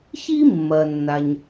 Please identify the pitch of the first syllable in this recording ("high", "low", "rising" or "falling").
high